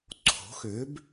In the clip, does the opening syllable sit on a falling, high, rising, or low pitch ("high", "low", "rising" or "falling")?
rising